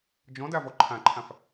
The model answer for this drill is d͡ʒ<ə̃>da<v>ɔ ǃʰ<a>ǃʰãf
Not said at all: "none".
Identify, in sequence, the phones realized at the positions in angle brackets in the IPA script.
ɔ̃, v, ã

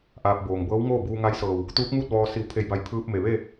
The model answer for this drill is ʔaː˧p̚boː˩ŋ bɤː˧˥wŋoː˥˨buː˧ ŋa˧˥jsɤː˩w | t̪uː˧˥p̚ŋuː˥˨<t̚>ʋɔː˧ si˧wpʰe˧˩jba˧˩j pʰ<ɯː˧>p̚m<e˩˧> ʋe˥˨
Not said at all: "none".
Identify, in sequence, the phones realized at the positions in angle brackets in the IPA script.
t̚, ɯː˧, e˩

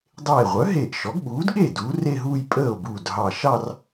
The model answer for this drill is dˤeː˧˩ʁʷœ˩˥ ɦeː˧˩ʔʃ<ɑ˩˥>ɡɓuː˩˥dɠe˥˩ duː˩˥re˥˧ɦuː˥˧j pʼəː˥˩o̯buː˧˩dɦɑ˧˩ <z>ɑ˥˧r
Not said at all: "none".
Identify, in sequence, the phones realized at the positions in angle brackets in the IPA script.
ɔ˩˥, ʃ

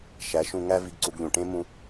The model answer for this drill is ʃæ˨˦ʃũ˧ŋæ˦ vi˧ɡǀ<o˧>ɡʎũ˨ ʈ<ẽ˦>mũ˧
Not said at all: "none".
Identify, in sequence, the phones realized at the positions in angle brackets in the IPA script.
u˧, ẽ˦

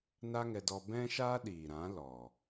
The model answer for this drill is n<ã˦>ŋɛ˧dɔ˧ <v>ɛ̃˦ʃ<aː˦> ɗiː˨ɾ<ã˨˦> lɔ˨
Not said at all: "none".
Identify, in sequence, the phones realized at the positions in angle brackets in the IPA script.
a˦, b, aː˦, ã˨˦

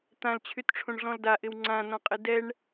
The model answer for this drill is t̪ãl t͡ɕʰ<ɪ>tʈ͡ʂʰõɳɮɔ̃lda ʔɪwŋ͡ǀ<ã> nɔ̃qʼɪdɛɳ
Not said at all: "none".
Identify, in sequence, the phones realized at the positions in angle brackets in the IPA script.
y, ã

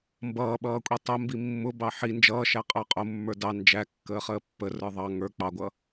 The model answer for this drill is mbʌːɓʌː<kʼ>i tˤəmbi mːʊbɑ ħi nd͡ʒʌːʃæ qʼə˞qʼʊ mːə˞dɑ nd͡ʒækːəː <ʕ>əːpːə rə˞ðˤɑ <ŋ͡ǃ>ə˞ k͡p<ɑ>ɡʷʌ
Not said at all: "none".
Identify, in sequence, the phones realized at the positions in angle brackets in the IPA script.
kʷʼ, χ, ŋ, ɑ

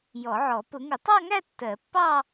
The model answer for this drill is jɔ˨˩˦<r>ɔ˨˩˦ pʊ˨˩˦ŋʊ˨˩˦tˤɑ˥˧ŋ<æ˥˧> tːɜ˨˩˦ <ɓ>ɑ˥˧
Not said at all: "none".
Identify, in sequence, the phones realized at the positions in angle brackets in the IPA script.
ʕ, æ˥˧, pː

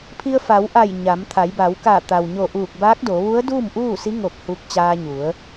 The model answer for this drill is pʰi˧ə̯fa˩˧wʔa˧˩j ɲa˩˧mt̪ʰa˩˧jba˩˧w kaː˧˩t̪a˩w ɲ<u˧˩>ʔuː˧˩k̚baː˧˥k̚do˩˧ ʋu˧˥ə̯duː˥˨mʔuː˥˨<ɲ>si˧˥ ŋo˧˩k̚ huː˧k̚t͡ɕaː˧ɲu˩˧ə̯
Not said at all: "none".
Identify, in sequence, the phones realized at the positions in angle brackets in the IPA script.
o˧˩, none

